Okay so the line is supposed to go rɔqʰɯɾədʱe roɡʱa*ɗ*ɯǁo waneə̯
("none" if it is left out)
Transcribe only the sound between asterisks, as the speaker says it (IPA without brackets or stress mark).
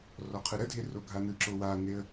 n